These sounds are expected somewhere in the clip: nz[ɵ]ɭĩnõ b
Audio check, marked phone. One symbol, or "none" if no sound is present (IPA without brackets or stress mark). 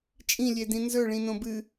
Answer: ɵ